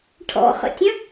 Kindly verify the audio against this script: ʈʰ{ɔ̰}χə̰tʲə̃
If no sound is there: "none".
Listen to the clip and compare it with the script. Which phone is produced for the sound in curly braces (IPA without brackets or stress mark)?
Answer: ɔ̰